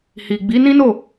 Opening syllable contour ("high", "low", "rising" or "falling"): low